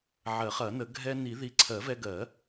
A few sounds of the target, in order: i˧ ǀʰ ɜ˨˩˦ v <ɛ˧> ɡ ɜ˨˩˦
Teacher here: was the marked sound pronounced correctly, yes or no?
yes